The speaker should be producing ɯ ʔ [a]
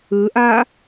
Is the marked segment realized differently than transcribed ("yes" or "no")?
no